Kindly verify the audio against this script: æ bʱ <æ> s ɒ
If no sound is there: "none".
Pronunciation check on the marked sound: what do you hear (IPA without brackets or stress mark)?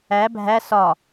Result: æ